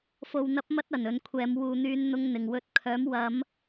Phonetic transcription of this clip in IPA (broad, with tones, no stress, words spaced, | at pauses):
fo˨wn̪ɐ˧p̚mɐ˧t̚ ɐ˨˩nɵ˨˧nkʷʰɛː˨˧m wuː˨n̪yː˨˧n n̪ʊ˧ŋn̪ɪ˨˩ŋwɵ˧t̚kʰœː˨˥m wɐ˨˧m